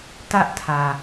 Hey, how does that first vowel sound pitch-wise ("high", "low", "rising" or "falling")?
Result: high